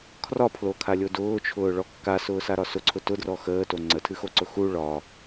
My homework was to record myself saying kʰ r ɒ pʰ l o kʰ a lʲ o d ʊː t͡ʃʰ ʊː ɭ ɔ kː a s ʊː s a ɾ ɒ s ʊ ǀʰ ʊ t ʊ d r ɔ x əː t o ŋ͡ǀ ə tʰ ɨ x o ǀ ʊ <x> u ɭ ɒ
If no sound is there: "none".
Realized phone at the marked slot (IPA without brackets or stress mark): x